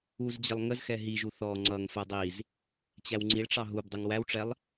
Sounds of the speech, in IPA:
u z d͡ʑ ə lˠ ŋ ə z x ɛ ɦ i ʒ u θ ɔ ŋ͡ǀ ʌ ŋ f ɛ dˤ i z | t͡ɕ æ w ŋ͡ǀ i ɭ ʈ͡ʂ ɑ ɦ u b dˤ u ŋ w æ w ʈ͡ʂ ɛ lˠ

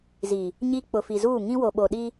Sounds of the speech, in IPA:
z i˨ | ɲ i˦ k͡p ʊ˨ f i˨ z uː˦˨ ŋ ĩ˦ w o˨ ɓ o˨ ɗ i˦

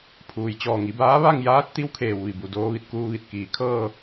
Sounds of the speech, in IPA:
pʰ uː˩ j t͡ɕ ɔː˧˩ ŋ i˩˧ b aː˧˥ ʋ a˥˨ ŋ j aː˧˥ t̚ t̪ i˧˥ w kʰ eː˩ w ʋ i˧˩ b u˧˩ d oː˧ ʋ i˧˩ t̚ k uː˧ ʋ i˧˩ t̚ k iː˧˩ kʰ ɤː˥˨

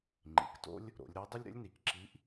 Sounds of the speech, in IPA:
ŋ͡ǃ ḭ˩˧ k t o̰˥ lʲ | ɾ o̰˩˧ lʲ ɾ ʌ˧˥ dˤ ə˥ lʲ ɾ ə̰˧˥ lʲ n i˩˧ k ǁ i˧˥ ʔ

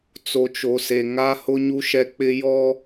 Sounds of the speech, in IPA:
t͡s o˨ t͡ʃ o˨ s e˨ ŋ a˦ h ʊ˦ ɲ u˦ ʃ ɛ˦ k͡p ɪ˦ j ɔ˦

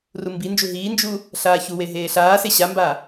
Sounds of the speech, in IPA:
r u m b i n d͡ʒ u ɦ iː n d͡ʒ u | ɬ aː ç u w e ɦ eː ɬ aː s e ɕ a m b a

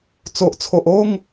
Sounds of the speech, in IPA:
t͡s o˨ ʔ t͡sʰ o˨ ʔ o˥˧ ŋ

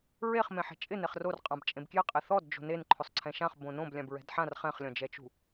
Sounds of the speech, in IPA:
ɹ e χ m ẽ ħ ɛ̤ t͡ʃʼ ɪ n e χ r o r qʼ ã b t͡ʃʼ ẽ b k j ɪ qʼ ɪ θ ɔ d d͡ʒ o̤ n e n ǃʰ ʊ sˤ ǀʰ ɛ̃ ʃ ã χ b õ n õ b lʲ ã b ɹ ɛ̤ d ħ ã r χ ɛ̃ χ lʲ ɔ̃ d͡ʒ ɛ t͡ʃ ṳ

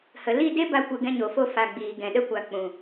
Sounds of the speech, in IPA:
h ə˨ l i˦˨ d e˦ b a˧ kʷ ɨ˨ ɡ ɛ̃˧ ɲ o˨ f o˧ f a˨ ɡ͡b iː˨ ɡ ɛ̃˨ ɗ ə˧ kʷ a˨ k͡p ũ˨

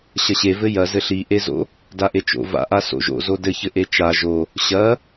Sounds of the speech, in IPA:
ɕ ɐ ɕ e v ɘ j ɐ z ɘ ɬ i ʔ e z o̰ | d a ʔ e t͡ʃ o̰ v a̰ ʔ a s o̰ ʒ o̰ z o d ɘ ç ɘ ʔ e t͡ʃ a ʒ o | ɕ ɐ

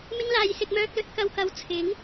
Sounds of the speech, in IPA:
m ɪ˥ ŋ l aː˨˧ j s ɪ˧ k̚ m œː˧ k̚ l ɵ˧ t̚ k ɐ˨ w k ɐ˨˥ w t͡sʰ ɪ˨˥ ŋ

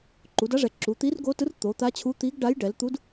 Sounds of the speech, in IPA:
ǃ u˩˧ d a˧˥ ʐ ɛ˩˧ ǁ u˩˧ t̪ i˧˥ r ɡ o˧˥ t ɯ˧˥ r t̪ o˩˧ t̪ a˧˥ t͡ɕʰ u˧˥ t̪ i˧˥ ɡ ɖ a˧˥ j ɖ ɛ˩˧ l t̪ u˧˥ d

